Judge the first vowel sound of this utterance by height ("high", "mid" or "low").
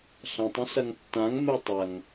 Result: low